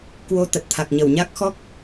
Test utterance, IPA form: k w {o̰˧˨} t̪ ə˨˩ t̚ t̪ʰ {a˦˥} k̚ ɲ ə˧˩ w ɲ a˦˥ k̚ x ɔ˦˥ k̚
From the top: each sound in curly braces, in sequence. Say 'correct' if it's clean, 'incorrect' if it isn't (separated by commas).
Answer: incorrect, incorrect